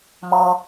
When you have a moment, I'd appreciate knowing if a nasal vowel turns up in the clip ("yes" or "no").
no